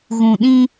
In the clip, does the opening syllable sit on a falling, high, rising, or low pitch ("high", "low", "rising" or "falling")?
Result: low